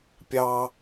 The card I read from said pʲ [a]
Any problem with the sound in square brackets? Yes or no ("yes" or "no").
yes